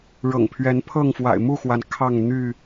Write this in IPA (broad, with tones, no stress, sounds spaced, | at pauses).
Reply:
ɻ ɤ̰˨˩ ŋ pʰ ɥ ɛ˨˦ n pʰ ɤ˥˨ ŋ f w a̰˨˩ ɪ̯ m u˥˨ x w a˩ n kʰ ɑ˥˨ ŋ n̪ y˥˨